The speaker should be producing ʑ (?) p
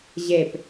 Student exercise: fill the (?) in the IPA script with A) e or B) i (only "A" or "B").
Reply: A